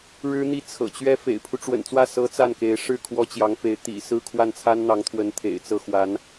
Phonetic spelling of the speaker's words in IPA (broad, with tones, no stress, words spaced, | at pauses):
ɻɻ̩˥n̪i˥˩ t͡sʰɤ̰˨˩t͡ɕɥɛ˥ fḛ˨˩ɪ̯pʰu˦ ʈ͡ʂwə̰˨˩nt͡swä˥˩ sɤ˧˥ t͡sa˥˩nke˧˥ɪ̯ ʂɻ̩˥˩ kʰwɔ˥t͡ɕjɑ˧˥ŋfe˧˥ɪ̯ t̪ḭ˨˩ sɹ̩˥˧ kʰwa˥˩nt͡sʰa˥nn̪ɑ˧˥ŋt̪ʰwə˧˥n t̪ʰḛ˨˩ɪ̯t͡sɤ˥˩xwa˧˥n